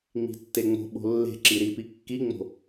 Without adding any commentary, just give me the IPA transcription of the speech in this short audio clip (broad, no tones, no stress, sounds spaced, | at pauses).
ŋ͡m i̤ tː e ŋ͡m o̤ ɓ o̤ lː e̤ ǁ i ɾ i p i kː i ŋ͡m o̤